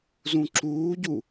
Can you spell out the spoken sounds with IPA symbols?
z ũ ǁ uː ɟ u

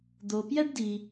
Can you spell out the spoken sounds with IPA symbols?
d̪ o˨ p j ɛ˥ ɖ d i˨

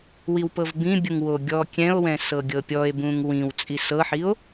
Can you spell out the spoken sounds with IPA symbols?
w i w p ɤ v b ĩ bʲ u ŋ w o ɡʲ ɔ kʲ ɛ̃ o̯ w ɛ̃ s ɤ ɡʲ ɤ pʲ ɔ e̯ b ũ ŋ w ĩ w t͡sʼ i s ɤ ħ i o̯

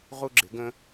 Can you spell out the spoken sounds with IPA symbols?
ʁ u˧ ɡ͡ǁ ɪ˩˧ ɡ ə̃˧

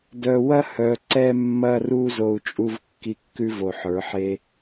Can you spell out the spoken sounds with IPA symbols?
d œ˧ w ɐ˦ h œ˨ ǀ ɛ˧ mː ɐ˧ r u˧ z o˧ u̯ t͡ʃʼ u˦ v kː i˦ kː ʉ˦ v o˨ ħ ə˞˨˦ ħ e˦

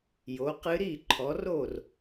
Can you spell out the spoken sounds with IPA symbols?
j o˨˦ q ɨ˦˥ ɾ i˥˨ ǃʰ ɔ˨˦ r o˥˨ r

